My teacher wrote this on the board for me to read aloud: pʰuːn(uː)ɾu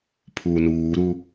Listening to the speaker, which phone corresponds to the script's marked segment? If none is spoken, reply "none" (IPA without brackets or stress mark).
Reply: uː